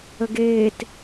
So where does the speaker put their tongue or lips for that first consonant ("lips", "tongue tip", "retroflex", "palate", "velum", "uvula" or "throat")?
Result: velum